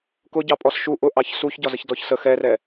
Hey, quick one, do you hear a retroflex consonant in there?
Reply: no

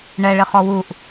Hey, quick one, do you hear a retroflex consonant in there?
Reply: yes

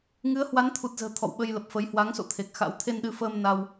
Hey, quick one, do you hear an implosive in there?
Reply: yes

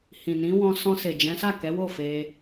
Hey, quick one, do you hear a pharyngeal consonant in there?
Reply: no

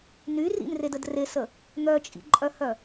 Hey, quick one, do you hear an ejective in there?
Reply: yes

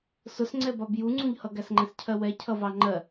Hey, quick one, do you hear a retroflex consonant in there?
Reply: no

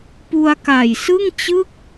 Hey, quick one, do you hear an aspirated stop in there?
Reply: no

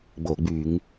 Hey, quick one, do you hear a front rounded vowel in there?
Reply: yes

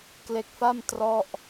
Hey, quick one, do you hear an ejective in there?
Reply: no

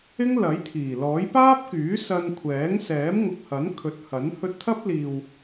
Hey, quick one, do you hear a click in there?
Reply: no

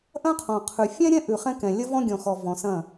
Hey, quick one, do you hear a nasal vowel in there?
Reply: yes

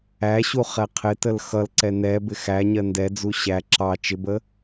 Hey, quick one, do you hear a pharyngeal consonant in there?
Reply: no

